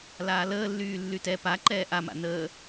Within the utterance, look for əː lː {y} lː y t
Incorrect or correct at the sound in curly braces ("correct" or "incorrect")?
incorrect